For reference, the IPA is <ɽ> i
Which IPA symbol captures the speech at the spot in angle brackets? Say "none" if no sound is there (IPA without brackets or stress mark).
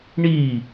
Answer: ɳ